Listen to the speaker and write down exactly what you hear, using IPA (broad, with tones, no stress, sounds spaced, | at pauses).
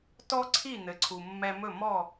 t ɔ˥ ǀʰ i˥˩ n̪ ɘ˩ ǀʰ u˩ mː ɛ˧ m ɵ˥˩ m ɔ˥˩